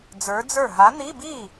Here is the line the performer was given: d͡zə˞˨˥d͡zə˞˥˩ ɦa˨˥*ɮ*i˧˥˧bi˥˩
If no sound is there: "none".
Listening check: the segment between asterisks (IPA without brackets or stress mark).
n̪